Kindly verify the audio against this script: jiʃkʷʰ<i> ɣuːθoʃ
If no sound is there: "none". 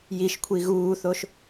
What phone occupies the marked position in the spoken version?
i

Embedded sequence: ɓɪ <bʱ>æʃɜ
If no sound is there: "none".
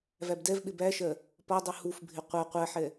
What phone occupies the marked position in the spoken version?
b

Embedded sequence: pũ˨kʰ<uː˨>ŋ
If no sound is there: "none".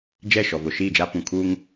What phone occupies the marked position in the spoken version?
uː˦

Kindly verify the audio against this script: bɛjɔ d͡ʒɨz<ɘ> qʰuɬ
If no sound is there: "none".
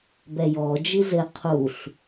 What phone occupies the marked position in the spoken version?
ɘ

